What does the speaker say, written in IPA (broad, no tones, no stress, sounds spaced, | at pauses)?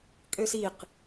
kʼ ø s i q